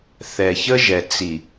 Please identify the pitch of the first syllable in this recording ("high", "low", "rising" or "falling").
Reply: low